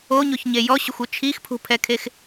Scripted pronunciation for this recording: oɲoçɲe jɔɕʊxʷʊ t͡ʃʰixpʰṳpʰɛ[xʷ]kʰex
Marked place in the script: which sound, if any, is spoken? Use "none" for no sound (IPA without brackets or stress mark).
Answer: none